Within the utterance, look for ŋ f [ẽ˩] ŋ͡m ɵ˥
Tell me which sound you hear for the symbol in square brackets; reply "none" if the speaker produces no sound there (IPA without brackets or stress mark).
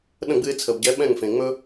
ẽ˩